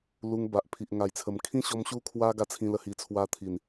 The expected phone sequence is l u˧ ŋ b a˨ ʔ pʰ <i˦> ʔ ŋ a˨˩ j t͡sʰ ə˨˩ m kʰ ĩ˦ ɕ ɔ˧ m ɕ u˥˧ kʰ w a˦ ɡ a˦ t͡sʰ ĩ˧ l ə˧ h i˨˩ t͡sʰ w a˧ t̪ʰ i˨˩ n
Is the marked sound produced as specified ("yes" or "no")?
no